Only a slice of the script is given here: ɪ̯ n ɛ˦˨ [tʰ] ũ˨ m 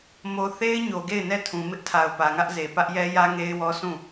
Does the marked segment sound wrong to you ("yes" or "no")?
no